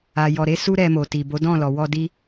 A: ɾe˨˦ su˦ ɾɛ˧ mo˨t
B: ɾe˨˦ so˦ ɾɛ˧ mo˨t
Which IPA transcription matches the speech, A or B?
A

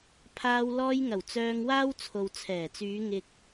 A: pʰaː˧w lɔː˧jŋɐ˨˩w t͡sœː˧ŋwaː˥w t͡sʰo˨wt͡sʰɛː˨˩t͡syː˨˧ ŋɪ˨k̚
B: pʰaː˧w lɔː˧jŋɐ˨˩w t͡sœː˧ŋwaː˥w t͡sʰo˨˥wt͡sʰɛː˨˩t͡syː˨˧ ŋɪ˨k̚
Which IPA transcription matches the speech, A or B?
A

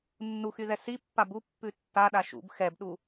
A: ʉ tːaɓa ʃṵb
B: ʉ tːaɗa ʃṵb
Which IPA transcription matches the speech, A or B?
B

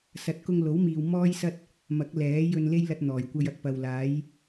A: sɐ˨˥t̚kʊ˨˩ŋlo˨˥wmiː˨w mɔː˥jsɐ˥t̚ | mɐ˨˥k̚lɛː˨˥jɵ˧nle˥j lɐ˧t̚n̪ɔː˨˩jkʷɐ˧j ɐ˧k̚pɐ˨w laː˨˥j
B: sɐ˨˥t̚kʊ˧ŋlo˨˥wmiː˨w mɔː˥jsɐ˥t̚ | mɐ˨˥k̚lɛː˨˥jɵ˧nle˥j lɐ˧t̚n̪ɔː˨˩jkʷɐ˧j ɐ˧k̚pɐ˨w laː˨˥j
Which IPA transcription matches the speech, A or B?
B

